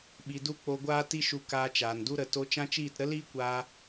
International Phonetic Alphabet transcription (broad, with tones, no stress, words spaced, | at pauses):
ɓi˧du˦ k͡po˧ɡʷaː˦ ti˦ʃu˧kaː˧t͡ʃaː˨n du˦ ɾə˨to˧ t͡ʃã˦t͡ʃiː˦˨t ɾə˦liː˦kʷaː˧